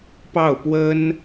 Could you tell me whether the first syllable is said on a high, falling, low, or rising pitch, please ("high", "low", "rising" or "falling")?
falling